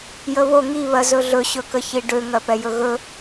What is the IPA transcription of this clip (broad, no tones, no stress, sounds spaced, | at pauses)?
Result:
j ə β o ŋ i β ɜ z ɵ ɮ ɵ ɕ ɵ k ə ç i ɖ ø ŋ ɜ p ɛ j ɵ ɣ ɵ